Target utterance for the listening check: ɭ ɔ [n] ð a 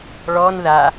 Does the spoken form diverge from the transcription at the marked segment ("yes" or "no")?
no